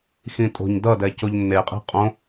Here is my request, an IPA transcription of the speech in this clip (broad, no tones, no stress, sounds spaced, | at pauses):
x ĩ tʼ o̤ ɲ d ʌ d ɛ c o ʎ nː e qʼ e̤ qʼ õ